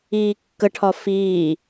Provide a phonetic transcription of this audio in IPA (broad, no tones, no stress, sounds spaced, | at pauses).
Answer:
iː kː ə ʈʰ ɒ f iː